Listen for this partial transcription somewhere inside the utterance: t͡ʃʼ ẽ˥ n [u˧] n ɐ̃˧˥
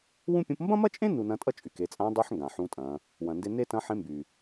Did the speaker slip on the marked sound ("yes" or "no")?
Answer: no